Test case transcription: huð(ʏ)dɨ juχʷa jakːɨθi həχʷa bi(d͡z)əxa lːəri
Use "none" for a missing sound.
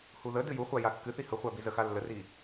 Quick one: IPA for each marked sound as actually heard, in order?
ə, z

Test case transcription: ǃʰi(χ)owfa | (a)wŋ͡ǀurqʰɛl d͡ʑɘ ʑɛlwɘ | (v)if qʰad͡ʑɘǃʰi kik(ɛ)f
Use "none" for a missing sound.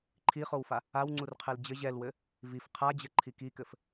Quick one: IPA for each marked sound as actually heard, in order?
χ, a, v, ɘ

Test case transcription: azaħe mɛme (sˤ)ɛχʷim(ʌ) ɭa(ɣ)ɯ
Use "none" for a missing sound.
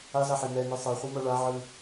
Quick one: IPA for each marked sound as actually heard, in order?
sˤ, ʌ, ʕ

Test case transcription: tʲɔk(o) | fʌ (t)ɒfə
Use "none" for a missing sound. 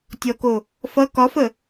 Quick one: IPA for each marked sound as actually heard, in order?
o, k

